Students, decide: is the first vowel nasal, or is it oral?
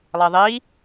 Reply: oral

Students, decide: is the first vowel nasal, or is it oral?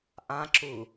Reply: nasal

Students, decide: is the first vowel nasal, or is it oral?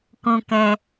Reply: nasal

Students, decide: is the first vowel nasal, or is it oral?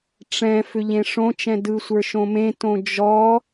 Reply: nasal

